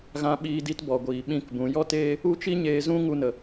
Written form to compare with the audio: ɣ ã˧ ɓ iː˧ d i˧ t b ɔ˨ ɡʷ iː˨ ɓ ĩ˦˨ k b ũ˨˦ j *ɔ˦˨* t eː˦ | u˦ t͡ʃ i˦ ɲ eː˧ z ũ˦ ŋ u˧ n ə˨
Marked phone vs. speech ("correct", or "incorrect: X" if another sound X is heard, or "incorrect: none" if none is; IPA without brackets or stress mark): incorrect: ɔ˦